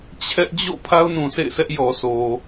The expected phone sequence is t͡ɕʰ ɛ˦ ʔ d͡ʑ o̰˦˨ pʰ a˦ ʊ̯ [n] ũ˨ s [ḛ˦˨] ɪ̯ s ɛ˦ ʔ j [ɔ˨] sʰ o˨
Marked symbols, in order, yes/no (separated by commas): yes, yes, yes